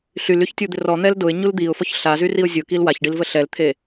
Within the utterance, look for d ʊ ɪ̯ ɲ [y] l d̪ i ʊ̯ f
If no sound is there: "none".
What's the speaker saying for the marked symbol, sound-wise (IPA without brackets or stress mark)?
u